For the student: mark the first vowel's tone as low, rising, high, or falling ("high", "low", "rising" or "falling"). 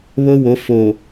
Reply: high